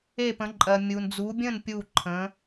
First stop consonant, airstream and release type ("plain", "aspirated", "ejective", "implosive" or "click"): plain